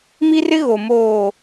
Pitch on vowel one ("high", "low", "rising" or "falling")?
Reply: high